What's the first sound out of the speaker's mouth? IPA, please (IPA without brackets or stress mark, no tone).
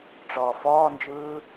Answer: ʈ͡ʂ